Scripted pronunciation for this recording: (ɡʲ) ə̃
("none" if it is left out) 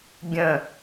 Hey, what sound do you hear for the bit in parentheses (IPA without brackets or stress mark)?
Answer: ɡʲ